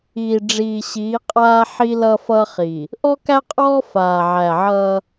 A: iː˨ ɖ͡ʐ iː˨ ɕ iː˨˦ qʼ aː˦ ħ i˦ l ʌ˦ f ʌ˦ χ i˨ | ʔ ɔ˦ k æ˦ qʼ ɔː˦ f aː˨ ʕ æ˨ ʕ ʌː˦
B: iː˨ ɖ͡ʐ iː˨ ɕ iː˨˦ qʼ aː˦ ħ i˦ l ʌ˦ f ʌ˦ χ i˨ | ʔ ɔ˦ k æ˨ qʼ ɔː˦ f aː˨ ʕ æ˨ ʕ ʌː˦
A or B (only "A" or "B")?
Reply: A